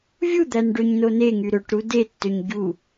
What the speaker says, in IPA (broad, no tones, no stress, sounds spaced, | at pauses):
vʲ u d̪ æ n ɖ ø ɲ n o n e ŋ y ɾ ø ʈ ɾ u d e tː ø ɲ ɟ u